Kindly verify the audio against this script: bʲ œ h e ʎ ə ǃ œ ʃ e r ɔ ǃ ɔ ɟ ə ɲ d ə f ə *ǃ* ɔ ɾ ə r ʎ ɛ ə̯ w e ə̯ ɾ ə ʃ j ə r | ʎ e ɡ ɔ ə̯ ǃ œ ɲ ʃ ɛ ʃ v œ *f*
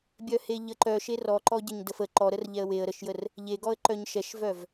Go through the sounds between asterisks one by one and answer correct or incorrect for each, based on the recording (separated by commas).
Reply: correct, incorrect